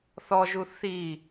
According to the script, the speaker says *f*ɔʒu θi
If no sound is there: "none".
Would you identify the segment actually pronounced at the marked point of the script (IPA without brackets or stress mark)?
θ